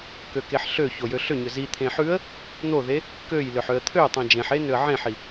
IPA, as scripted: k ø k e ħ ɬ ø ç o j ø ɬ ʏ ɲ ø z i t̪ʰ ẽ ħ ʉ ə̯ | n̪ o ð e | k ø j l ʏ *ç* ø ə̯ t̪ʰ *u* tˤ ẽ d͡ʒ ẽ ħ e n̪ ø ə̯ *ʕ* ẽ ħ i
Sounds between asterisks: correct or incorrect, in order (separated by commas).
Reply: incorrect, incorrect, correct